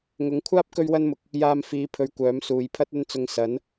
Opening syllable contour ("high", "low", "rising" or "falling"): rising